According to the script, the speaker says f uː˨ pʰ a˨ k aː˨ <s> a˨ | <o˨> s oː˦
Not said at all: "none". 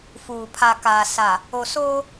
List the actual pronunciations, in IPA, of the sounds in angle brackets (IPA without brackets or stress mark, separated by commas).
s, o˨